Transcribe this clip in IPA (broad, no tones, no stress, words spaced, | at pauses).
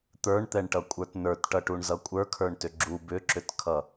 t̪ə˞ɳt̪ɛɳʈʌkʷʼə˞t nə˞tʈʌʈuɳzʌ kʷʼə˞kʰə˞ɳtʏ ɡ͡ǁu bʏǁʏtkʰʌ